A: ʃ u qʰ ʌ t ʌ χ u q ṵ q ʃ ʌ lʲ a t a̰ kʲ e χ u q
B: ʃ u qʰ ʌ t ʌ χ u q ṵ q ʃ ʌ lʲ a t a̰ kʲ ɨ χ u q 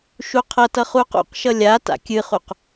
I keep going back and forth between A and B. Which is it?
B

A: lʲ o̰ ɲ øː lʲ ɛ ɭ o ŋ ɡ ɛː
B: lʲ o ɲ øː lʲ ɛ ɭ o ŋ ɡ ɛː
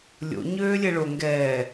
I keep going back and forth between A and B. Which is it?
A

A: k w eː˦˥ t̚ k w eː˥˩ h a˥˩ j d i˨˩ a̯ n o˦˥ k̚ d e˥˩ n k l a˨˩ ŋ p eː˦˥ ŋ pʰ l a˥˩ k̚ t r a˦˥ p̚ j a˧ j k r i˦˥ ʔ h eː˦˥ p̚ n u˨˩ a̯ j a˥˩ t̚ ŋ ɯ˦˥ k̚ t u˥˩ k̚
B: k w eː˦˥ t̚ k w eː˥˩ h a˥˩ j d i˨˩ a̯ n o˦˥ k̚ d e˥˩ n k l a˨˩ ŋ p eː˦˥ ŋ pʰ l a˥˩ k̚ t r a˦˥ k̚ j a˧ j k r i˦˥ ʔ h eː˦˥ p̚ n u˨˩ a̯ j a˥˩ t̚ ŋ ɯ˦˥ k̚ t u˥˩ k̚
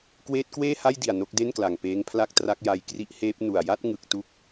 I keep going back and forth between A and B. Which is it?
B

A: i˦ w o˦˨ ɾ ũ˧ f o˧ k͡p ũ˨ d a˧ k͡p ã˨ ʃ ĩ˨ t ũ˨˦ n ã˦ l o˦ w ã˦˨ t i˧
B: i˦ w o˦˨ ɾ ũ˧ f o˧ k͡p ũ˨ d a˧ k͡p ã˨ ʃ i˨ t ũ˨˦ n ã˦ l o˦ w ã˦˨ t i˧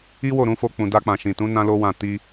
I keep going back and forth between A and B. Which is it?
A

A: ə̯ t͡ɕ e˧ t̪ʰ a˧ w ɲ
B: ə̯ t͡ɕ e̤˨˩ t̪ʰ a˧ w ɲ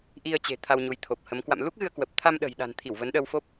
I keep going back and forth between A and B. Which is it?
B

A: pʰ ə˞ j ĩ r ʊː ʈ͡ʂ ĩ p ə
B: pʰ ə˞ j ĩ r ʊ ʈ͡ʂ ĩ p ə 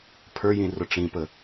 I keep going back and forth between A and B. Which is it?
B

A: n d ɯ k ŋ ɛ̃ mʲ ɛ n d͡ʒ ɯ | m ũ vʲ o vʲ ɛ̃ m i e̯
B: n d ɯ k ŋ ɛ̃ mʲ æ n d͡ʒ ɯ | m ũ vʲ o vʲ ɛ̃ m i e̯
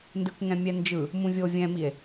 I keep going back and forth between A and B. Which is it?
A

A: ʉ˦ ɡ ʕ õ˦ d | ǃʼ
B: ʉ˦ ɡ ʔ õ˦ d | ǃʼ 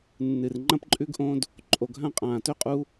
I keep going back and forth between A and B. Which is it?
B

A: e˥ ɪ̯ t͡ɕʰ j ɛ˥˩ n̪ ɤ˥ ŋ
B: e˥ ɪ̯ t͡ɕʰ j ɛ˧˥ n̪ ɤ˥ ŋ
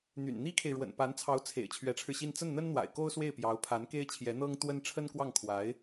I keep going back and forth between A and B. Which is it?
B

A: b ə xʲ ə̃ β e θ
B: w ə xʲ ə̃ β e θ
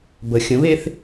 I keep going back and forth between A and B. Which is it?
A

